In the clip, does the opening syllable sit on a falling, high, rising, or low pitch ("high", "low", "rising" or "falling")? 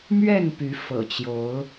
falling